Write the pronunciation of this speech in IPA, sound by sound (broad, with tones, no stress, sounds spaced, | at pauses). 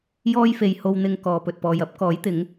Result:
j ɔː˥ j f e˨ j h o˧ w n̪ ɪ˨ ŋ k ɔː˨ p ɵ˨ t̚ p ɔː˨ j ɐ˨˥ p̚ k ɔː˨˥ j t̪ ɪ˨˥ ŋ